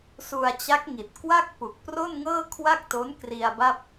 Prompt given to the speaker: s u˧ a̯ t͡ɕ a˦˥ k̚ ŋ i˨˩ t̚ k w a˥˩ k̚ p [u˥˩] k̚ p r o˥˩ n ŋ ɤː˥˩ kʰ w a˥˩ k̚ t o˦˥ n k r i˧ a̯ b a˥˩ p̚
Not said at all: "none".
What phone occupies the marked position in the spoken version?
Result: u˨˩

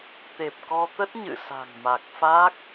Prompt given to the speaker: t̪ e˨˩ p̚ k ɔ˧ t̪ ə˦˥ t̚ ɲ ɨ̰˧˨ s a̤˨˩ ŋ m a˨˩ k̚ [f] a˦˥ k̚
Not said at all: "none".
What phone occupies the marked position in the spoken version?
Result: f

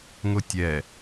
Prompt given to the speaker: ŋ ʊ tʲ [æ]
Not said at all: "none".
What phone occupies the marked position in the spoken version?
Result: ɛ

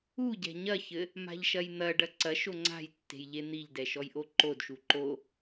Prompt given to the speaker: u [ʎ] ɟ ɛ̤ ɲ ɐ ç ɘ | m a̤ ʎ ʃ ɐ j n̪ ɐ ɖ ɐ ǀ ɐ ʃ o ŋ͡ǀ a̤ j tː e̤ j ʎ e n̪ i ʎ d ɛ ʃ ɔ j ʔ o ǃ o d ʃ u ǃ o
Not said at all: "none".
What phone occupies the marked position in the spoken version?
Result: none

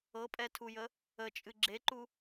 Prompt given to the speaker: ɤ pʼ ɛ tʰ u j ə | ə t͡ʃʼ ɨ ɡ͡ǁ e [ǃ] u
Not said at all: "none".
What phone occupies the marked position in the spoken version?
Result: ǃ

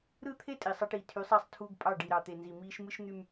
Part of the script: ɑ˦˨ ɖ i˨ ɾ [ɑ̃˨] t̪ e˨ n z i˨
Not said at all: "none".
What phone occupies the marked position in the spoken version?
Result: ɑ˨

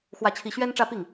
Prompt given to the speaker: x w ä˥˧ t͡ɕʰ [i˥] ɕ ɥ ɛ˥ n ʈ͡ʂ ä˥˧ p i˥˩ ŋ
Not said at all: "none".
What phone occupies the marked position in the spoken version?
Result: i˥˩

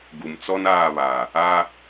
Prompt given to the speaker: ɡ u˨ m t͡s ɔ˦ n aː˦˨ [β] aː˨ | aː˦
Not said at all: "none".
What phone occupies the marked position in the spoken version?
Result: β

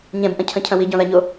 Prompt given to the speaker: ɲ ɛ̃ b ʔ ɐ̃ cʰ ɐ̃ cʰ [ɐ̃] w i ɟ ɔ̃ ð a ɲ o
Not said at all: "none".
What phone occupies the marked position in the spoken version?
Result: ɐ̃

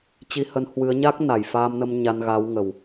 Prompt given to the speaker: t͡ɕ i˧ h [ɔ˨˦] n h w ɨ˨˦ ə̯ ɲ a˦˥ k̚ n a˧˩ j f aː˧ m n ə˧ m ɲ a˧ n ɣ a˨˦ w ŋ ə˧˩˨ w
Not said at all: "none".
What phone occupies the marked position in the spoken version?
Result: ə˨˦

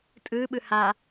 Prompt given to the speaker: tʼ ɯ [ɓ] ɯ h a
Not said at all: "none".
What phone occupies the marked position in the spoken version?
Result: ɓ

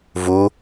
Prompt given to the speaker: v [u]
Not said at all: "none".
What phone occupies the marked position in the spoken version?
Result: u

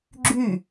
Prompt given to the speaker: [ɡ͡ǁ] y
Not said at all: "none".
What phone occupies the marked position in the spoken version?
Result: ɡ͡ǁ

